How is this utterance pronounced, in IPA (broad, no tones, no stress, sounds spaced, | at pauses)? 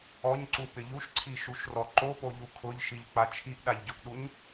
ɔ ɲ ǀ u p ɪ ʎ u ʃ ǀʰ i ʃ u ʃ r ɔ ǃ o p o ʎ u kʰ ʊ ʎ ʃ i ʎ k͡p a t͡ʃʰ i ʔ ɗ a ʎ ɟ ʊ ʔ ɗ u ɲ